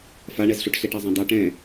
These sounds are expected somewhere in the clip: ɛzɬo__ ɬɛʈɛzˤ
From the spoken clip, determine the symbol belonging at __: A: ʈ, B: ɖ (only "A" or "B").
A